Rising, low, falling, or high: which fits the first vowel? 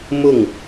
falling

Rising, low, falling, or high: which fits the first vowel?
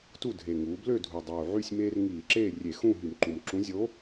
falling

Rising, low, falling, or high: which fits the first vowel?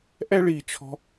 high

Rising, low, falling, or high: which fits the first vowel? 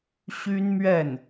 high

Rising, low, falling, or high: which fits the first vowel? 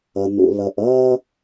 low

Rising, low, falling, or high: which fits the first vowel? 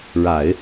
low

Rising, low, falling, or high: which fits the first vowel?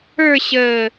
falling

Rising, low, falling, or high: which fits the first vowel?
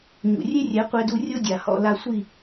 low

